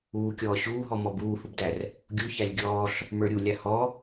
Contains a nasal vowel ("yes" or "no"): no